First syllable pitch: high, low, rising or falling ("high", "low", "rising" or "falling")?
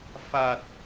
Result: low